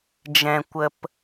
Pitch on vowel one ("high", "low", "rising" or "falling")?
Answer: low